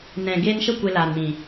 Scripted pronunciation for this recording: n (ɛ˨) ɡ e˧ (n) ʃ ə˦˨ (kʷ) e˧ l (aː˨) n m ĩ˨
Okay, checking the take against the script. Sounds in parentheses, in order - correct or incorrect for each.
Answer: incorrect: ɛ̃˨, correct, correct, correct

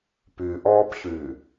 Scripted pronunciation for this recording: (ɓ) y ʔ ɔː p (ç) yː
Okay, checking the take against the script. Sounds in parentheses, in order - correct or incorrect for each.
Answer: incorrect: p, correct

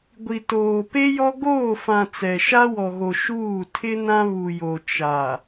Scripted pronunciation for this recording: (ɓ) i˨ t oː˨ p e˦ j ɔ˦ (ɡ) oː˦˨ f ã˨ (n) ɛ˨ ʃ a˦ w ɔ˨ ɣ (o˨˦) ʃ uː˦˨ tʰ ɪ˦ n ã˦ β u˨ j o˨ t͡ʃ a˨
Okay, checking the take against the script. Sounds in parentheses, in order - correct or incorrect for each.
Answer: incorrect: ɡʷ, correct, incorrect: t͡s, incorrect: o˨

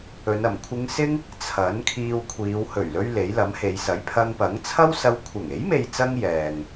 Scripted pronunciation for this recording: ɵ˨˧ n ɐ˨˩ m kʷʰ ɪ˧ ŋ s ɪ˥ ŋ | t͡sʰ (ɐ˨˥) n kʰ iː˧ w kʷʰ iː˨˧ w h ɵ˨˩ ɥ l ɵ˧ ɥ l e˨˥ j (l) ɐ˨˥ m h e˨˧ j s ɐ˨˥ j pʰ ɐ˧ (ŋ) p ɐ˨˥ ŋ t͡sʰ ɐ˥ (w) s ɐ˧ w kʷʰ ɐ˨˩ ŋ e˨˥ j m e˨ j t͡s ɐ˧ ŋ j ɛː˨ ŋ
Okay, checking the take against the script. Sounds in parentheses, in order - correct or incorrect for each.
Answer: correct, correct, correct, correct

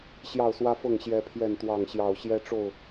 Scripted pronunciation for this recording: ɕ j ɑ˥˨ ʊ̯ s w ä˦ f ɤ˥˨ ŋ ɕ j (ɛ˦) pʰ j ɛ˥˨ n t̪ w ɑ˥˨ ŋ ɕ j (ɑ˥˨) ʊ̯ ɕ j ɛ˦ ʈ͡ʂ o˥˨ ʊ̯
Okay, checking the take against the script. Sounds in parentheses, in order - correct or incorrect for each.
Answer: correct, correct

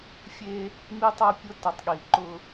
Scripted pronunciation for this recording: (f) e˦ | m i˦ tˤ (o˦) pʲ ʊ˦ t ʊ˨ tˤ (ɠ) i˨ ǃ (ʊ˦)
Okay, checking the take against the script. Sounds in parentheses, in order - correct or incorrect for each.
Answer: incorrect: fʲ, correct, correct, correct

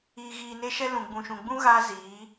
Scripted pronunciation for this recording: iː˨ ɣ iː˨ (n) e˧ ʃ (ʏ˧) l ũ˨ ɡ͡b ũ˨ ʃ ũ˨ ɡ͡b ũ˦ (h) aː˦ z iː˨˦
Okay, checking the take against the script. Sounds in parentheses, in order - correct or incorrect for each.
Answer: correct, incorrect: ɛ˧, incorrect: ɣ

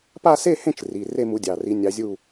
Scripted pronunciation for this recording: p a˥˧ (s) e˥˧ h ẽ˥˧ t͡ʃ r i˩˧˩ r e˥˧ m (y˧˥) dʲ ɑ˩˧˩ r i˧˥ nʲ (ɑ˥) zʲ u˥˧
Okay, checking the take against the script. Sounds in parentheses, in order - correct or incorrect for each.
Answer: correct, incorrect: u˧˥, incorrect: ɑ˧˥

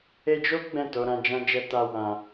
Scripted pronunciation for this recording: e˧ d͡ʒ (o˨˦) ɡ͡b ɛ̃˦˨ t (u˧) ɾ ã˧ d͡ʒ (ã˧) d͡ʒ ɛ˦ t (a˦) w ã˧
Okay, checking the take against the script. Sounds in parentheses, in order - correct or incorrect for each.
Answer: incorrect: o˦, incorrect: o˧, incorrect: ã˦, correct

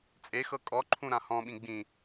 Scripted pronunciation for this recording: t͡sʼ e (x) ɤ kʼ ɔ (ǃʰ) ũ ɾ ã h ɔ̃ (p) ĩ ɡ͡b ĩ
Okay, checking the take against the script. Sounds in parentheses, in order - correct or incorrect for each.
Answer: correct, correct, incorrect: ɓ

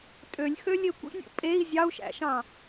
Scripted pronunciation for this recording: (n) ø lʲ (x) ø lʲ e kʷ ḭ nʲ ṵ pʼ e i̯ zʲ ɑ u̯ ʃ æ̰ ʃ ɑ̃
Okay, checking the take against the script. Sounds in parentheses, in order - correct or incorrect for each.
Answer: incorrect: tʼ, correct

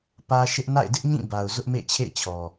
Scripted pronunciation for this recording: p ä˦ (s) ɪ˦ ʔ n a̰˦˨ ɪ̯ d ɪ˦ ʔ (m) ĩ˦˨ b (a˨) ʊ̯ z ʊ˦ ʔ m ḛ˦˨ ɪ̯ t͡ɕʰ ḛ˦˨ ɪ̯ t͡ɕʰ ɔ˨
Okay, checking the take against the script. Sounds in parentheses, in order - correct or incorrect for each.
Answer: incorrect: ʃ, incorrect: ɲ, correct

